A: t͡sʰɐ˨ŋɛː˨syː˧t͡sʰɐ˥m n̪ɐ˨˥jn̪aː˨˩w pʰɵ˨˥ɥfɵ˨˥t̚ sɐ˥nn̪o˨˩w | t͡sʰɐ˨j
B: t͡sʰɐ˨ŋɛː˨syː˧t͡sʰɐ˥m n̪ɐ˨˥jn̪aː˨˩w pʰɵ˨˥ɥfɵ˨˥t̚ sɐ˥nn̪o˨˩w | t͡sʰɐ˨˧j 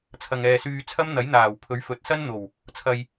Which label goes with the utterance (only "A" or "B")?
A